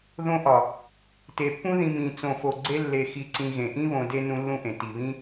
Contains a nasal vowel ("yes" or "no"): yes